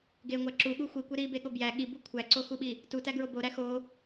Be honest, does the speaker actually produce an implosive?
yes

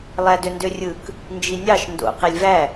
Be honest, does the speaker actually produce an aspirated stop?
no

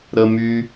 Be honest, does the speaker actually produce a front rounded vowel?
yes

